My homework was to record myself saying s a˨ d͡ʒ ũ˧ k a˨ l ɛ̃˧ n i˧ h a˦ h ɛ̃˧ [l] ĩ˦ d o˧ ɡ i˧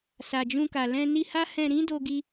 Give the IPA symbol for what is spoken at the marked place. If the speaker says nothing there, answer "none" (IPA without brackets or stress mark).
ɾ